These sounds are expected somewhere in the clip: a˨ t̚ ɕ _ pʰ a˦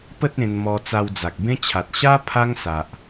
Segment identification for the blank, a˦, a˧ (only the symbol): a˦